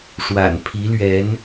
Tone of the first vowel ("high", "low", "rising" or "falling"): low